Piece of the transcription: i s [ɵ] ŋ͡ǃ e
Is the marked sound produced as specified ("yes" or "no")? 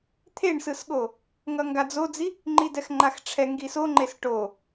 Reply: no